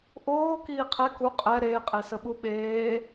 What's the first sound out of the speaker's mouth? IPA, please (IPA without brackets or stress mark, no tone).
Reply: ʔ